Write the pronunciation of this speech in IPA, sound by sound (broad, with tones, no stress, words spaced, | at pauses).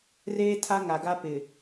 reː˦tʰa˦ŋa˨ɡa˦ pɪ˨